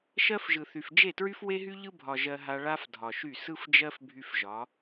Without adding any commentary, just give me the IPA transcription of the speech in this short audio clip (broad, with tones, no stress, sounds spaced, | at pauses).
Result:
ʃ ɜ˦ f ʒ ɯ˨ θ y˨ f d͡ʒ e˦˨ t ɹ y˦ f w e˦ ɦ y˦ ʎ ɯ˦ bʱ ɒ˨ ʒ ɜ˦ ɦ a˦ ɭ a˦ f dʱ ɒ˨ ʃ y˦˨ s ɯ˦ f d͡ʒ ɜ˦ f bʱ y˦ f ʒ ɒ˨˦